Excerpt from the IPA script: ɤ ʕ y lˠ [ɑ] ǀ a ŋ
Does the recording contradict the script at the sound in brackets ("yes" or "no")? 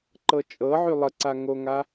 yes